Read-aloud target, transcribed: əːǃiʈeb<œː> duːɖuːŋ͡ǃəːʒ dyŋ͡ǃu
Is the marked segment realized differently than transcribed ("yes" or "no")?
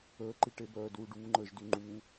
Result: no